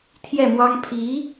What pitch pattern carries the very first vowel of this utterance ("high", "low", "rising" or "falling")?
falling